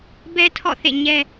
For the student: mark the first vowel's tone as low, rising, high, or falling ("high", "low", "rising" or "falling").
high